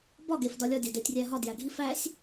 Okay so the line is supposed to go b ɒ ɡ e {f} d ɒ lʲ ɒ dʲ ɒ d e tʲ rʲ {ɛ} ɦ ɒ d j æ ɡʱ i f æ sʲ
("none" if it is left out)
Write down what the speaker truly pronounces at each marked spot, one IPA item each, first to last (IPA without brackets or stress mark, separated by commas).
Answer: f, æ